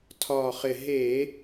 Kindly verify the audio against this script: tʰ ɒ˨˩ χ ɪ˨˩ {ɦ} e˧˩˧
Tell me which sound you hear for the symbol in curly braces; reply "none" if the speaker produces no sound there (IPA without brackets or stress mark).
ɦ